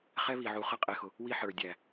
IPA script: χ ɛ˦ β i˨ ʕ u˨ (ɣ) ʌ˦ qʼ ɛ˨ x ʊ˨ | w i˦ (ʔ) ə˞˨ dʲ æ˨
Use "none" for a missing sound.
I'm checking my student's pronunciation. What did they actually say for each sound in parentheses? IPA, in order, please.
χ, ħ

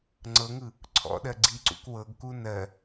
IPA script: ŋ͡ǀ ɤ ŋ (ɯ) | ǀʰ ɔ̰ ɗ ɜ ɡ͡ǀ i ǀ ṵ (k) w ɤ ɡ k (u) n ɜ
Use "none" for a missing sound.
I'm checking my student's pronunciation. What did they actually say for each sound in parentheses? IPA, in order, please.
ɯ, k, u

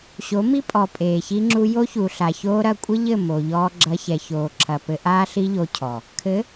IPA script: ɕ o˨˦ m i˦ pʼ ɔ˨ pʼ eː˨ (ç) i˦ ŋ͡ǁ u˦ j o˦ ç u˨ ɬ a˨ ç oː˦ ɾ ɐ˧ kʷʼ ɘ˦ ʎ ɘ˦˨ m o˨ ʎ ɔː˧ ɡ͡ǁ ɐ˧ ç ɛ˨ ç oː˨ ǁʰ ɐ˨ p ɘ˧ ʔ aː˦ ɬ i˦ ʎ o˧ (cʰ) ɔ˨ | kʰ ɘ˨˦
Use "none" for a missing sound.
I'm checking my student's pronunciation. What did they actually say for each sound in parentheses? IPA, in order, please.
ç, cʰ

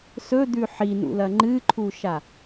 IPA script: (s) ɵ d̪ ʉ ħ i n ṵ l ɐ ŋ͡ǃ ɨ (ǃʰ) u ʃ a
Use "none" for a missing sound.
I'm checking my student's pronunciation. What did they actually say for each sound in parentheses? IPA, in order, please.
s, ǃʰ

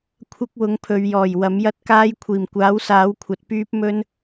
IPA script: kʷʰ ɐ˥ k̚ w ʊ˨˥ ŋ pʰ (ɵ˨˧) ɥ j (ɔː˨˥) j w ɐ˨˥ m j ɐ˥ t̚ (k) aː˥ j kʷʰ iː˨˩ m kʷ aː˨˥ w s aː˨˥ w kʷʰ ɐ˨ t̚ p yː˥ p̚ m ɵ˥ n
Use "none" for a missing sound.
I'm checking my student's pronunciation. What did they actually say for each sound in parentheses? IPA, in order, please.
ɵ˨˧, ɔː˨˩, k

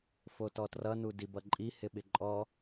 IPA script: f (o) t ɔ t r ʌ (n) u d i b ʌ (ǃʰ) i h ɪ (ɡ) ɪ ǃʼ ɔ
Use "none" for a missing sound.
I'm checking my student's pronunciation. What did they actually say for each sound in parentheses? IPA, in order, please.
o, n, ǃʼ, ɓ

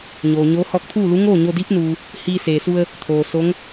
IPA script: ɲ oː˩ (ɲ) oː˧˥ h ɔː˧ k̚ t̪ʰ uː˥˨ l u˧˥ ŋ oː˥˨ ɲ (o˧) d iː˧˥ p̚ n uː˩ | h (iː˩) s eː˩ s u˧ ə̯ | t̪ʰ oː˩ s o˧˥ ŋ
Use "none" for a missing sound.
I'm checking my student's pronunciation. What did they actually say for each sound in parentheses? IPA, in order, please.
ɲ, o˧, iː˧

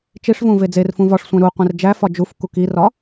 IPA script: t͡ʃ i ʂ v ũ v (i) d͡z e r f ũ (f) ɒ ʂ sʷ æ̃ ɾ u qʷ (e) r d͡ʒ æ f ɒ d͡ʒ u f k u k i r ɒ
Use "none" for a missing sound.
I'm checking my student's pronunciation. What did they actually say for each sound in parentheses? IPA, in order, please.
e, v, ẽ

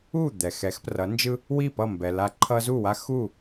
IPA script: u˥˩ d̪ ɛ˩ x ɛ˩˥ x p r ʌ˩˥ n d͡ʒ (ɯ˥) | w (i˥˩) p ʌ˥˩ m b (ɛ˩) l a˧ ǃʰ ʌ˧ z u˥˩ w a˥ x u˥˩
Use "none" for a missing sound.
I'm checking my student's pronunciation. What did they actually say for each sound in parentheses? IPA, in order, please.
ɯ˥, i˥˩, ɛ˩

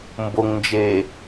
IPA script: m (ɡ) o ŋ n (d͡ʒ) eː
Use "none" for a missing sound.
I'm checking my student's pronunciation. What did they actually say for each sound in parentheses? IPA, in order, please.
b, d͡ʒ

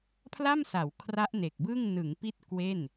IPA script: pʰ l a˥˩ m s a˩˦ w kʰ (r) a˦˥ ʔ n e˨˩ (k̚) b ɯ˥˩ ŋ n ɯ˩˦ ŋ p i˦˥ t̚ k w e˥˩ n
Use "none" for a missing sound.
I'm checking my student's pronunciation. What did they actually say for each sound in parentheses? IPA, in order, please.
r, k̚

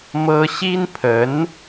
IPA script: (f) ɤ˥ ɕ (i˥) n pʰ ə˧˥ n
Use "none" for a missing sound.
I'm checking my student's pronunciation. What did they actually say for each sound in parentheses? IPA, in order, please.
m, i˥

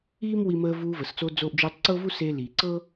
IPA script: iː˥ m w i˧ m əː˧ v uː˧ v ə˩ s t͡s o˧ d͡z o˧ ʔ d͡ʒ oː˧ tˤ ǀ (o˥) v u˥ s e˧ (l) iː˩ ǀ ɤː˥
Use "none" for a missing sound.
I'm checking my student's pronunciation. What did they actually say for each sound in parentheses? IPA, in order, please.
ɤ˥, l

